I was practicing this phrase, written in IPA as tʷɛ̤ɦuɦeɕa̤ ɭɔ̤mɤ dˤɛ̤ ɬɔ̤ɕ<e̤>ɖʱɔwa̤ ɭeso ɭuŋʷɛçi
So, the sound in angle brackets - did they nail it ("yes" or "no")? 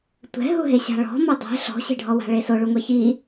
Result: yes